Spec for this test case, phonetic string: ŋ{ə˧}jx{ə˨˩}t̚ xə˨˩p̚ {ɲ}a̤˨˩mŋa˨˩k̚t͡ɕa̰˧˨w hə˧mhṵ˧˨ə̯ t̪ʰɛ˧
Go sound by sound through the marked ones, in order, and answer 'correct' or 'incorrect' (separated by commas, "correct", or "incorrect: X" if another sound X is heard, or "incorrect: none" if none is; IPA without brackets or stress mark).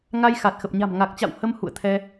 incorrect: a˧, incorrect: a˨˩, correct